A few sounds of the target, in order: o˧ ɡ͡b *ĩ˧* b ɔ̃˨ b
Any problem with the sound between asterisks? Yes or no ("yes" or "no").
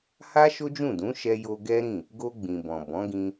yes